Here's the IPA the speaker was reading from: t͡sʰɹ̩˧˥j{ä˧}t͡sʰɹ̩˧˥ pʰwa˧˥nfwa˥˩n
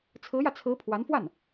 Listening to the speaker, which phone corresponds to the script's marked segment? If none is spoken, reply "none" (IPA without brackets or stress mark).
ä˧